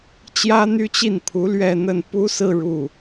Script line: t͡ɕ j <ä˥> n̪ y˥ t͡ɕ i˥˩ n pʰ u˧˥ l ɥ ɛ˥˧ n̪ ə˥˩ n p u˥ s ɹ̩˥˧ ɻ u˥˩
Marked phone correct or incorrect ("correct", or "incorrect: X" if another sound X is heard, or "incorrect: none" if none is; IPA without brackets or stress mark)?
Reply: correct